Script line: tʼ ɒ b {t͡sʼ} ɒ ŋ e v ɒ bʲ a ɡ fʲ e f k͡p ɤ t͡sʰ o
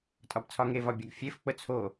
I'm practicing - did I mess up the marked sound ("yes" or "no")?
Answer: yes